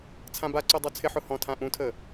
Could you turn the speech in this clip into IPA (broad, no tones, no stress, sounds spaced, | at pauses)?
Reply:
t͡sʰ ã b a ǀ o dˤ o t͡sʰ ɪ ħ ʊ h ɔ̃ tʰ ã ʔ ũ tʰ ə